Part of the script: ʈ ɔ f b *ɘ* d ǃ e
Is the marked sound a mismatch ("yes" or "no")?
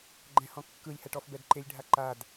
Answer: yes